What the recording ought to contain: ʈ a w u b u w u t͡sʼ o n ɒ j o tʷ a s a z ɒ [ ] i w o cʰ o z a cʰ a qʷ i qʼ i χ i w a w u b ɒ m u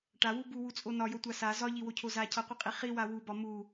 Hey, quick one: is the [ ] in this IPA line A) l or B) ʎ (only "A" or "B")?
B